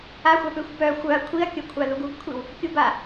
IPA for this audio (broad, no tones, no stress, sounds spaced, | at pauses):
a xʷ a p ø xʷ b œ xʷ œ ɐ̯ kʷʰ i ɐ̯ kʲ o kʷʰ a ð u ɡ u ɡ kʷʰ i w | kʲ u b a